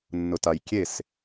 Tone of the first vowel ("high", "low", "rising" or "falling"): low